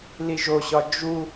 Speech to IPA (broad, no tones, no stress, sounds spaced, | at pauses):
l i ʒ o ɕ ɒ d͡ʒ u